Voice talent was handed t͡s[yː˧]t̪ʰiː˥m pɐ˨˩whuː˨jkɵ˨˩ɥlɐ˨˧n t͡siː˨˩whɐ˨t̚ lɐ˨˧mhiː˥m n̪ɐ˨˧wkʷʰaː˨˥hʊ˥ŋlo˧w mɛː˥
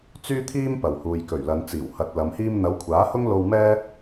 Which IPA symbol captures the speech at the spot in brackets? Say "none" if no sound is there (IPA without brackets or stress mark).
yː˥